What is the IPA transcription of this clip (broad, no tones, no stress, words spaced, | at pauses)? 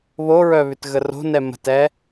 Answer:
βoɹœ βʏtɣəro̤nɛ mə̤tɛ